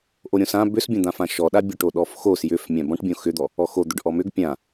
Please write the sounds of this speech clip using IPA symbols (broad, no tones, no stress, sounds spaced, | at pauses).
ʔ o ɾʲ õ s ã b ʏ s bʲ õ d̪ ã f ã ʃ ɔ ɗ a bʲ o ʈ o ɗ ɔ f x o s j ʏ f mʲ ã b ɔ̃ ʈ bʲ õ x ʏ d̪ ɔ | ɔ x o d̪ ʏ ɖ ʔ ɔ m ʏ ɡ pʲ ã